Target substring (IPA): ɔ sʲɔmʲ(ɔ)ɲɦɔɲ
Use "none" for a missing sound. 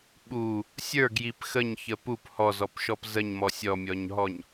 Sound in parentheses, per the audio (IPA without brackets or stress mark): ɔ